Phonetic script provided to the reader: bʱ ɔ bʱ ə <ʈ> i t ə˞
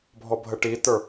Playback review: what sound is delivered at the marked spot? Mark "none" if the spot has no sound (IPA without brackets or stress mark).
ʈ